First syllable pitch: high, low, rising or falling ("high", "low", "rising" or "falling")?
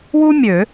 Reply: high